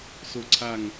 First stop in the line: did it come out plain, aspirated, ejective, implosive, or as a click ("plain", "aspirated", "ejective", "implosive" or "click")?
click